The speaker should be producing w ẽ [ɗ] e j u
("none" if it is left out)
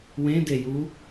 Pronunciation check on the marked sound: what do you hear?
d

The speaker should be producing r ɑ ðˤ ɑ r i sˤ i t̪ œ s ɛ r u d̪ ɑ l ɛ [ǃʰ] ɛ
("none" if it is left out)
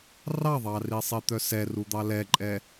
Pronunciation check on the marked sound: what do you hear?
ǃʼ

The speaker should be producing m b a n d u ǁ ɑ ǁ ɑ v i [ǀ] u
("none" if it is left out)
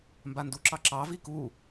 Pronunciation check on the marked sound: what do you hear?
k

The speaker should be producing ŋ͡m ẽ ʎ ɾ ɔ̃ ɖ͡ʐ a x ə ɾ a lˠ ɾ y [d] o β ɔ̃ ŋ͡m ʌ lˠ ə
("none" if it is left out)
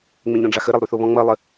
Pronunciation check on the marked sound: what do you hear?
θ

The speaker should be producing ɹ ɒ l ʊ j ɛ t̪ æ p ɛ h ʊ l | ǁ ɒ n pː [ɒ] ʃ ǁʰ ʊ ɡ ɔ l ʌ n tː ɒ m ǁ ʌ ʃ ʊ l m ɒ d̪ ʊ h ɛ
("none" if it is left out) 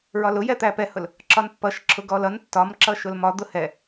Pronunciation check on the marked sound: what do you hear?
ʌ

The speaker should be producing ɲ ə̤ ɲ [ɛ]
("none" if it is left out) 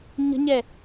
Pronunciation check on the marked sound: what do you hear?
ɛ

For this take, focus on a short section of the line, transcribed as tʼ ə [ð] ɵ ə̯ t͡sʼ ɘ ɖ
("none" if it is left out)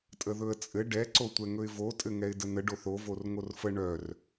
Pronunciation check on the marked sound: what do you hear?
ð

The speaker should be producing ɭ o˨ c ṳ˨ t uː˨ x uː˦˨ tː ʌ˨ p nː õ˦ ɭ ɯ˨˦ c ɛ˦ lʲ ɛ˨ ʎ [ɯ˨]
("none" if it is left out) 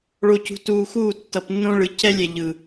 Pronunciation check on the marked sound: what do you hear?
ɯ˨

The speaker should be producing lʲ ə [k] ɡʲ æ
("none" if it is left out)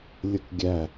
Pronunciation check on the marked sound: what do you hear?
k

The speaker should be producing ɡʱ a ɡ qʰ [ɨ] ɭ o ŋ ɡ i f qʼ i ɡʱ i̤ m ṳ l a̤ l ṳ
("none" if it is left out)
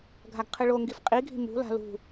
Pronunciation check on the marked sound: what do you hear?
ɨ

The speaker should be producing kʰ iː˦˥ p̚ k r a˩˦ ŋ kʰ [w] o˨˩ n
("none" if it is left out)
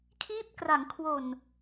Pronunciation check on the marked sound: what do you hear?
w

